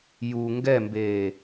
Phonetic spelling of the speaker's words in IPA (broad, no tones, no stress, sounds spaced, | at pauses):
j u ŋ ɡ ɛ m b eː